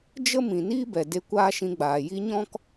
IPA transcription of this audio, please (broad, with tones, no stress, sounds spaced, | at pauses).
d͡ʒ ə˦ m ĩ˨ n iː˦ b ɛ˨ d e˧ kʷ aː˦ ʃ ĩ˧ ɡ͡b aː˨ j i˧ ɲ ɔ̃˦ k